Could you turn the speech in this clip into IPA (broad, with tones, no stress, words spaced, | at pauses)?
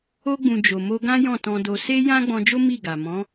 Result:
o˧ɡ͡bũ˨ d͡ʒo˨mo˧ɡã˦ jɔ̃˦˨tɔ̃˧do˧ se˦jã˦ ɡ͡bɔ̃˧d͡ʒo˦ mi˦˨ɡa˨ mɔ̃˨˦